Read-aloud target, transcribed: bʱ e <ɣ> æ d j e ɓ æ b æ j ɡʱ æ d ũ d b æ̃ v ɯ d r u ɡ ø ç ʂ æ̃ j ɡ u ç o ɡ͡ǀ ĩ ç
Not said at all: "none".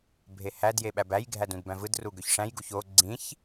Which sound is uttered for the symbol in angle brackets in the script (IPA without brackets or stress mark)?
h